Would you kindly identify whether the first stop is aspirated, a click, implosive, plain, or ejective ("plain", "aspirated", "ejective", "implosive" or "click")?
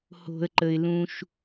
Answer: click